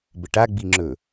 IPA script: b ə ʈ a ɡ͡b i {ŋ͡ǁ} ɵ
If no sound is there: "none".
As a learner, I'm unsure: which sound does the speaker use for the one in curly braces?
ŋ͡ǁ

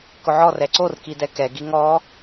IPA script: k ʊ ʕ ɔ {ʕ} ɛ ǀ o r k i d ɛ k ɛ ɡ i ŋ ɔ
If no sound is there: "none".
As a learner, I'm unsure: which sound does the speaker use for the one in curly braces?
r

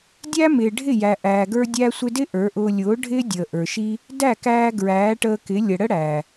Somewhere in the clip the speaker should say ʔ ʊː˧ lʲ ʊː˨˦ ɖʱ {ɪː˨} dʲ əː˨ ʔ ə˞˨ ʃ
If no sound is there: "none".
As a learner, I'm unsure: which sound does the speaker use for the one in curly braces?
ɪː˦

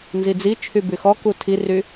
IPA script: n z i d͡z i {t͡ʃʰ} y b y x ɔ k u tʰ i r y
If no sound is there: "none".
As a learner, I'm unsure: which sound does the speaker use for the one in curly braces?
t͡ʃʰ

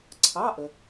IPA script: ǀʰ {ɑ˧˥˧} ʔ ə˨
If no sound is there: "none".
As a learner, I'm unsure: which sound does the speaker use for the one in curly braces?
ɑ˧˥˧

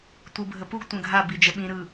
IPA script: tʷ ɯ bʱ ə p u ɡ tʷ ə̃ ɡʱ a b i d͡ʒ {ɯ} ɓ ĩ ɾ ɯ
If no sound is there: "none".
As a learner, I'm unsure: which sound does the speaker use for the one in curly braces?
ə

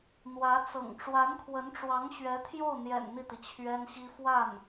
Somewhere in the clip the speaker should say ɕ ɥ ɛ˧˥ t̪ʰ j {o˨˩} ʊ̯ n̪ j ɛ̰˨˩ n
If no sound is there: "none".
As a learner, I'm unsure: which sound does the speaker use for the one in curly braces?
o˥˩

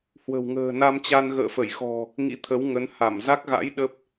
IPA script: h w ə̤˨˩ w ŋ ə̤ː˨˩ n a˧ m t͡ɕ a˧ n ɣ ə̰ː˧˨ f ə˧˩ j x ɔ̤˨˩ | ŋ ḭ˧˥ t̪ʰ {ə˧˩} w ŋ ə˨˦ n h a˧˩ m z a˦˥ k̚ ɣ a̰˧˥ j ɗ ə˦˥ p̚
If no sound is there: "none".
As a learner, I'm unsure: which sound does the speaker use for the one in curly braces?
ə˨˦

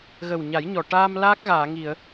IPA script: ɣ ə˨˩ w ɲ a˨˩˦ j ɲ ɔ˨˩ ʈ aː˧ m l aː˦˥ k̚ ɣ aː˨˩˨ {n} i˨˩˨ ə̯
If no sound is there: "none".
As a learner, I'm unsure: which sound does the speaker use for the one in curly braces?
ŋ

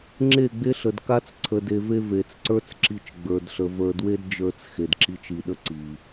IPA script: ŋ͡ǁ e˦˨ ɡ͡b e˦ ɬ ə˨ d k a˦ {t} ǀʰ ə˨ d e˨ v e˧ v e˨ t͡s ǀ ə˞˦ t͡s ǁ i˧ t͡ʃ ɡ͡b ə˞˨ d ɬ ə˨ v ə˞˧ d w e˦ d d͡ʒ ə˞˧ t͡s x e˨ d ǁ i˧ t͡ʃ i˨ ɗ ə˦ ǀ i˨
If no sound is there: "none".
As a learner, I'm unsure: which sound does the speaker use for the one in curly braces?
t͡s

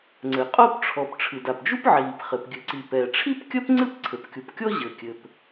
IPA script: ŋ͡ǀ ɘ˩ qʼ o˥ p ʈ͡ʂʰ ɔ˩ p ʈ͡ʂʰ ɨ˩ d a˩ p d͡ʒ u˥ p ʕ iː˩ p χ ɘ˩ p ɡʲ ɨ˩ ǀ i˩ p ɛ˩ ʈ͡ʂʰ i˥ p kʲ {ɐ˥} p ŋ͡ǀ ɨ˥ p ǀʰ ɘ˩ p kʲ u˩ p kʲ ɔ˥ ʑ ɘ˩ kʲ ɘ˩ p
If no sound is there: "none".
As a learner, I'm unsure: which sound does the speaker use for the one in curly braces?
ɐ˥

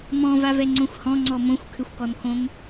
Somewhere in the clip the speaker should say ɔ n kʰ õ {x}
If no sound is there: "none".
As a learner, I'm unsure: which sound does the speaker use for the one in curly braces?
ŋ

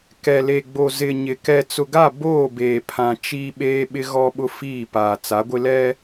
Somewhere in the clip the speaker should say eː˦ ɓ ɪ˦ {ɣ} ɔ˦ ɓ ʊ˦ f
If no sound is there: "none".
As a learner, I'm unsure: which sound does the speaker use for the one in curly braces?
ɣ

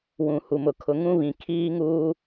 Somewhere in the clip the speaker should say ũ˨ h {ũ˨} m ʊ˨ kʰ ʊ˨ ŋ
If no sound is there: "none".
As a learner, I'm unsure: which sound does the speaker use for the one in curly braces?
u˨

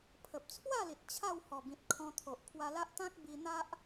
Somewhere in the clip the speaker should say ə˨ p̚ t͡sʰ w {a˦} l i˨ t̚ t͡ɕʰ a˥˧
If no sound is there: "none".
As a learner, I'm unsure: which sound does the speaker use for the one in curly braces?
a˥˧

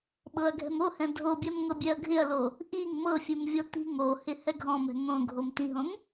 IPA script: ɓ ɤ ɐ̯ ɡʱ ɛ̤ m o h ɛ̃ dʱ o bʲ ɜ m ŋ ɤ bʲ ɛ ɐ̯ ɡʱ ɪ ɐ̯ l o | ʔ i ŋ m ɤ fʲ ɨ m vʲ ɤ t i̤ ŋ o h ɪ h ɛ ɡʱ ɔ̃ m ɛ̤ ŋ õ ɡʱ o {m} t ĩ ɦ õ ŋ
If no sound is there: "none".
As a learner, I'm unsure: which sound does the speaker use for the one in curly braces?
m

